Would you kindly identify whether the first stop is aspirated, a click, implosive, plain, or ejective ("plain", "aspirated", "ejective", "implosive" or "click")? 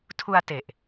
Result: aspirated